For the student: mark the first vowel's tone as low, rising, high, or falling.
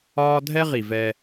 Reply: high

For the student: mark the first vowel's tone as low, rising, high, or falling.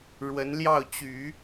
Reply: rising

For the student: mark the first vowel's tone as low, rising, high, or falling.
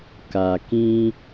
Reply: low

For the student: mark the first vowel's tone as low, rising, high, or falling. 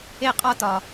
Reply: falling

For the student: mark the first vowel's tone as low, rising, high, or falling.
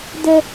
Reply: high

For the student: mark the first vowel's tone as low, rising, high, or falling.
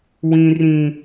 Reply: high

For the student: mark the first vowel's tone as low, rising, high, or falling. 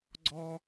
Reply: high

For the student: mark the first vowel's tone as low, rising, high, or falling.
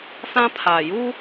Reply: high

